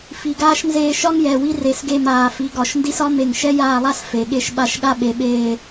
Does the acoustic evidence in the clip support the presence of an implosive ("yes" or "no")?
yes